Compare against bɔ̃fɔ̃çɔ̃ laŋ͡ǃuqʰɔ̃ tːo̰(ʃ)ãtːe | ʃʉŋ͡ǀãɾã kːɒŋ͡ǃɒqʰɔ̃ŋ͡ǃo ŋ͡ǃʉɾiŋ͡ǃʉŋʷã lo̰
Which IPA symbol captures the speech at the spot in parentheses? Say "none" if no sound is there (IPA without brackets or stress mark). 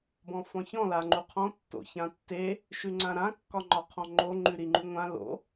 ç